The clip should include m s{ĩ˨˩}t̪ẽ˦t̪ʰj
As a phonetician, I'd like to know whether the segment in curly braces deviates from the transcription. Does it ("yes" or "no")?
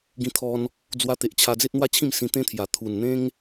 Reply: yes